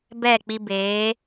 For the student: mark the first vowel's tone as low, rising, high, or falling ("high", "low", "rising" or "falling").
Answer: falling